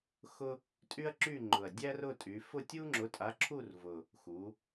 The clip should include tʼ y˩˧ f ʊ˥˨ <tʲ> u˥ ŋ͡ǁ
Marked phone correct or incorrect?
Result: correct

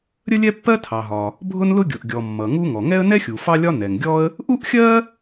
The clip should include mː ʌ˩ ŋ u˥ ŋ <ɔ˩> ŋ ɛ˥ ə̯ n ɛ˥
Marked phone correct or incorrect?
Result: correct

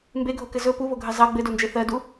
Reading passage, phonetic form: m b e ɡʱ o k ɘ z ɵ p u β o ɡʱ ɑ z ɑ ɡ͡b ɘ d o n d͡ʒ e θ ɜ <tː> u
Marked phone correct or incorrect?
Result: incorrect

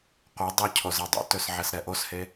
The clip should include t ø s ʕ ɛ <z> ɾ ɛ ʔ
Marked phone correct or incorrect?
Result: incorrect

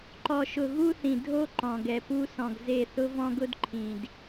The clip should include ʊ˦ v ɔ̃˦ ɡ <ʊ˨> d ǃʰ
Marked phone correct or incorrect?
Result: incorrect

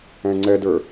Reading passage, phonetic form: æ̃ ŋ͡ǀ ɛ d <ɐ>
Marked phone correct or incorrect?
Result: incorrect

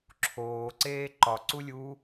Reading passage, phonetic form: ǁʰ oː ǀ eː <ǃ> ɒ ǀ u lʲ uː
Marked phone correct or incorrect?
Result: correct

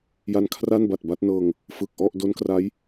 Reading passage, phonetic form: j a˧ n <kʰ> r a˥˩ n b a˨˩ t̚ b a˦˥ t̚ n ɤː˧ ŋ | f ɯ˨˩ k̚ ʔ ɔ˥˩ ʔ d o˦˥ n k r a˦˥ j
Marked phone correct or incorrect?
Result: correct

